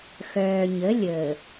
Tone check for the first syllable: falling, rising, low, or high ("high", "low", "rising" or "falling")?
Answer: low